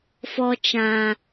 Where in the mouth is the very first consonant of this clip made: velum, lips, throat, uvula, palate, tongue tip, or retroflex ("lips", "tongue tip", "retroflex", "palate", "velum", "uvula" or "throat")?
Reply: lips